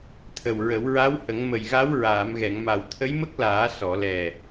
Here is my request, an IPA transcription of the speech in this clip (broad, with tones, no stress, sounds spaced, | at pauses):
t̪ʰ ə˨˩ w ɹ ə˨˩˦ w ɹ a˧˥ w h ə˨˩˦ ŋ m ə˨˩ j ɣ a˧˥ w ɹ aː˨˩˨ m ɣ ɛ˨˩˨ ŋ m a˨˩ w t̪ʰ ə˧˥ j m ə˦˥ k̚ l aː˨˩˦ s ɔ˨˩˨ l ɛ˨˩